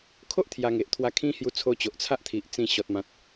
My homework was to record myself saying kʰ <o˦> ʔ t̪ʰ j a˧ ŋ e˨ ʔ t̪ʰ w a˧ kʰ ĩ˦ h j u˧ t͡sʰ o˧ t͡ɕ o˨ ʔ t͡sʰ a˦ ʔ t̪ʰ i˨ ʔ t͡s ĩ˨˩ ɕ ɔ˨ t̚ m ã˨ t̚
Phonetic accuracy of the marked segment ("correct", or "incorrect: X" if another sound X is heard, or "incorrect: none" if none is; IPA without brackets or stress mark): correct